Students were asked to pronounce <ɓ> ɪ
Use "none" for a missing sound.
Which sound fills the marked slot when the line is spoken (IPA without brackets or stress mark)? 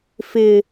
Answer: f